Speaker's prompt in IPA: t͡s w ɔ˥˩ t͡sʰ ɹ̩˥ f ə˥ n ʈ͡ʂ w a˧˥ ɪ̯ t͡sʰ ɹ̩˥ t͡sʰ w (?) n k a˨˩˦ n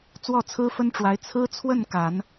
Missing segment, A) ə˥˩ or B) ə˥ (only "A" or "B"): A